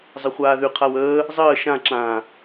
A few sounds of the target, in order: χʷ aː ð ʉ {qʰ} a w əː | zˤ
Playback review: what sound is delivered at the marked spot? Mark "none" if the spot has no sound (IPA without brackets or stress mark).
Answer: qʰ